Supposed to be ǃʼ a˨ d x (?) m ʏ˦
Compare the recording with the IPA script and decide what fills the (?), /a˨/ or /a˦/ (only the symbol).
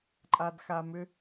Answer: a˨